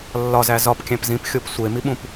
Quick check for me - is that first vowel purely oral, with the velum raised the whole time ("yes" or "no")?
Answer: yes